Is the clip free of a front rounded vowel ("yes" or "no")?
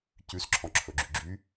no